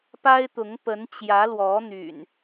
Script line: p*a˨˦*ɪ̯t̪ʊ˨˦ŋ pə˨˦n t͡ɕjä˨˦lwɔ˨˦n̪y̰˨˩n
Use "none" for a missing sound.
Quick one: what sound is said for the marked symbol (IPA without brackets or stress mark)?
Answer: a˦